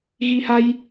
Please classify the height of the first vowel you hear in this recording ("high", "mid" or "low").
high